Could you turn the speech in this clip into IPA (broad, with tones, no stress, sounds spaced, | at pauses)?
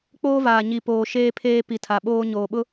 k͡p oː˦ v aː˨ ɲ i˨ p oː˨ ʃ eː˦ pʰ eː˦ p i˨ tʰ a˨ ɓ oː˦ ɲ oː˨ ɓ ʊ˦